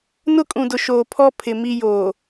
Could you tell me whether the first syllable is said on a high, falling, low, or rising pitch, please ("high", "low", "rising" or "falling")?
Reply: high